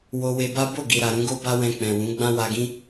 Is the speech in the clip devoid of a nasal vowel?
no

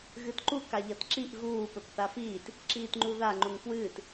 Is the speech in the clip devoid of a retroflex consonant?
yes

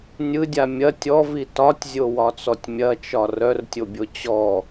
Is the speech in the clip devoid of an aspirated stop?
yes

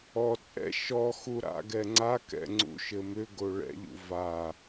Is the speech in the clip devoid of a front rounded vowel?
no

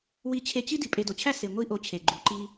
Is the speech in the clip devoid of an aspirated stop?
no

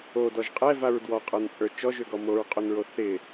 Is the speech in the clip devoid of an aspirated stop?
yes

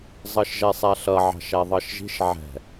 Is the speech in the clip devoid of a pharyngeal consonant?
no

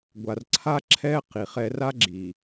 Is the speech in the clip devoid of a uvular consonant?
no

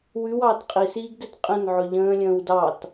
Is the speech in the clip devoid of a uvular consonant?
no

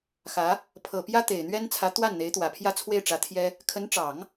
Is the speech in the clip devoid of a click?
yes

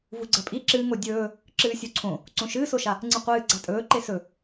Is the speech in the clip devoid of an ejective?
no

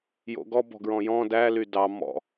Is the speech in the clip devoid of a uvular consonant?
yes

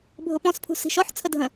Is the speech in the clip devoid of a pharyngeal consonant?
no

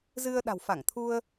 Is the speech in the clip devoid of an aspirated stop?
no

